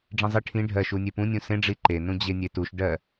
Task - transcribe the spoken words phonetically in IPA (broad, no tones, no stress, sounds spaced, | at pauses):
ɖ͡ʐ ĩ zˤ i ʈʰ ĩ ɖʱ ɜ ʃ u nʲ e p ũ nʲ ũ s ẽ ɖ͡ʐ i ǃ e n ũ d͡ʑ e nʲ e t u ʃ ɖ ɜ